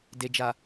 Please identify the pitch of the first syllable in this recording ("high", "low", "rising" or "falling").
low